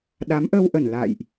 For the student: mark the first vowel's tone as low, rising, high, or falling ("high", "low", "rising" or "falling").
rising